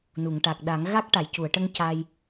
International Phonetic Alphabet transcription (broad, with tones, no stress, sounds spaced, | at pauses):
n u˨˩˨ ŋ ʈ a˨˩ k̚ ɗ a˨˩˦ ŋ ɣ a˦˥ k̚ ʈ a˨˩˨ j c u˨˩˨ ə̯ ʈ ə˧ ŋ c a˧ j